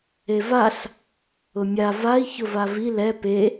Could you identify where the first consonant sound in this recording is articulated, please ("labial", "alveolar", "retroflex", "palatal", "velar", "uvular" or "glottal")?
labial